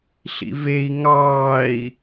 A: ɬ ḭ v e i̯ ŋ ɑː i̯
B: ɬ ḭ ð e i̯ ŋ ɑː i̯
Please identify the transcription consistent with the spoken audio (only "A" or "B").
A